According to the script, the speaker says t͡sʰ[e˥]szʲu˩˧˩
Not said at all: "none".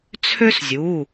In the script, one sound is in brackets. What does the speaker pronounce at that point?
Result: ø˥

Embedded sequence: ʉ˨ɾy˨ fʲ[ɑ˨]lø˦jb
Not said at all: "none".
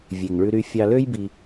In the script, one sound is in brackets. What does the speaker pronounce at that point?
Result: ɑ˨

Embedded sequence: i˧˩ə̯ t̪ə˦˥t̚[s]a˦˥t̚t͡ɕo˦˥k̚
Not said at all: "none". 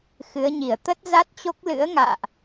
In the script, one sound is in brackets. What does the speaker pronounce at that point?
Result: z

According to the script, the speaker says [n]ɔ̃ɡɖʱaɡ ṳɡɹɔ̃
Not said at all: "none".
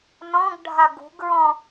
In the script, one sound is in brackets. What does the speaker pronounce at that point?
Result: n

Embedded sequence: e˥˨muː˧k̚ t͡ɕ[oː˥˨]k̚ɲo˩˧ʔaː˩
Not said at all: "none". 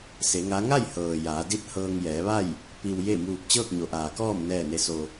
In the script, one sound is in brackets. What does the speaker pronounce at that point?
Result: ɤː˥˨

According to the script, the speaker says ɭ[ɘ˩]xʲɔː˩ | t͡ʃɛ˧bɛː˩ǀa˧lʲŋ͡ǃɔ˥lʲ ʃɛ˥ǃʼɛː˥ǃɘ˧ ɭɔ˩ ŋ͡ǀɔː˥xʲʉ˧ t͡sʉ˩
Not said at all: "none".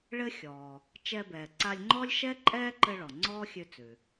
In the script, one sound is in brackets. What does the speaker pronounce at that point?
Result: ɘ˥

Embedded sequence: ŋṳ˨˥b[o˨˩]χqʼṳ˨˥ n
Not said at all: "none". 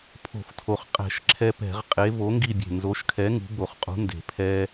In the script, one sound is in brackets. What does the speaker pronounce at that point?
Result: o˨˩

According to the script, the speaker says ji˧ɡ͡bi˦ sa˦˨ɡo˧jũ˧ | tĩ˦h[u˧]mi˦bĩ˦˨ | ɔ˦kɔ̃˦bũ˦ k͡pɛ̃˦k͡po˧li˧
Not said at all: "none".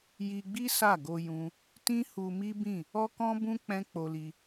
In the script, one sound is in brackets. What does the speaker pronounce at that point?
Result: u˧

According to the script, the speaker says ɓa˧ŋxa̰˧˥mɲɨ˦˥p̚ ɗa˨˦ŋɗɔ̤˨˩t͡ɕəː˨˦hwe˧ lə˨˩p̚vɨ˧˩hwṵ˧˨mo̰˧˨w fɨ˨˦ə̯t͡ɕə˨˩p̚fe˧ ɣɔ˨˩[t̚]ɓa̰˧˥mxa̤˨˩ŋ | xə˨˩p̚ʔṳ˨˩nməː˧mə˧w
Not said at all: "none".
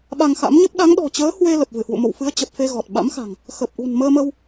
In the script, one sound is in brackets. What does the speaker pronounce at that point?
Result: t̚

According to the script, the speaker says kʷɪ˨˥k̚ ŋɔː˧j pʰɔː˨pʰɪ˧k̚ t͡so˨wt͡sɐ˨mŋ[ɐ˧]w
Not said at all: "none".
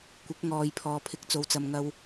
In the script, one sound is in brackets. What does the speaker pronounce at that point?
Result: ɐ˧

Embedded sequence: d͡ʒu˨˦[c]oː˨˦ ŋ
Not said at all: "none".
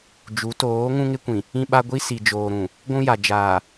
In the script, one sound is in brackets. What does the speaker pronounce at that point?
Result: t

